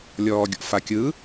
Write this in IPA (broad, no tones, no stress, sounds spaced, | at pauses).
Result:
lʲ ɔː ɡʲ ɔ̰ f a kʲ ɯ